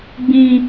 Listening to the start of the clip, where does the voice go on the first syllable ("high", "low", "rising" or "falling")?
high